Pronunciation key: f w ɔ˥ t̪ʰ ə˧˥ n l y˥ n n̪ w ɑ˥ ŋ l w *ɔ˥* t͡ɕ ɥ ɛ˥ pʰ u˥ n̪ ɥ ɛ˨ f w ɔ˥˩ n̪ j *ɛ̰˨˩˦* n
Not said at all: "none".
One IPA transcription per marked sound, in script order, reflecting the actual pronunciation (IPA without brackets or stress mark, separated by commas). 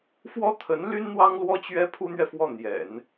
ɔ˥, ɛ̰˨˩˦